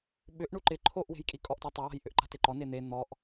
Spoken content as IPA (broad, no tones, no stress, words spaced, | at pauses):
ɓʏʔ ɳuǃɪ ǃʰoʔwe̤jkʼi kʼɔʔtatˤɪwa̤j ʔʏʔǃa̤teǃɔ nen̪e n̪ɔʔ